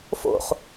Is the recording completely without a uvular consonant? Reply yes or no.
no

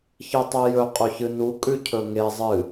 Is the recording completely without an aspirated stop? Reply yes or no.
no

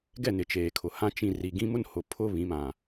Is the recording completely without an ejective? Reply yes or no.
yes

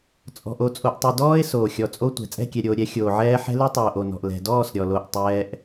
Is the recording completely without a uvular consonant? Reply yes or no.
yes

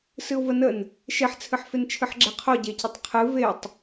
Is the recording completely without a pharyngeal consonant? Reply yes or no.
no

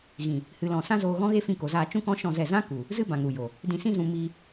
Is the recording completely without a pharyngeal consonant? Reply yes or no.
yes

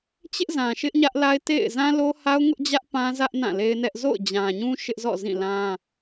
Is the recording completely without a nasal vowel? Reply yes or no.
no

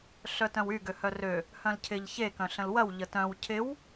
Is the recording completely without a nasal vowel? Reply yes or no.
no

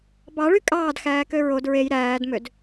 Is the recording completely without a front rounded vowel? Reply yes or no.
no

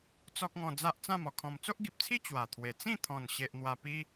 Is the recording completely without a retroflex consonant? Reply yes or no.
yes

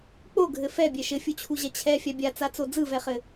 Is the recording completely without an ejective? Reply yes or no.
yes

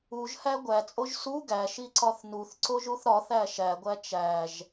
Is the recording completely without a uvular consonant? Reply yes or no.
yes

